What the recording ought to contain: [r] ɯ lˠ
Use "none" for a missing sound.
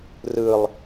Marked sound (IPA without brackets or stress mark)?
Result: r